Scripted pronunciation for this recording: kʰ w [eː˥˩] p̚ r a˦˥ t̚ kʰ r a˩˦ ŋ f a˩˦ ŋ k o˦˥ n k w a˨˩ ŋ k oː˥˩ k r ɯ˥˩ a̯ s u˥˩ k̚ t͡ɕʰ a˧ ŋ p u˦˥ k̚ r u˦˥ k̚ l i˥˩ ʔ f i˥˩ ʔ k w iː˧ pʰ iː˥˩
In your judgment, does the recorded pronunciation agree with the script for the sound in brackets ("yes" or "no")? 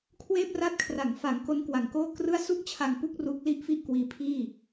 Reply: yes